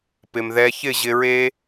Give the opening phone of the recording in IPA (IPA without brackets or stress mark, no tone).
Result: p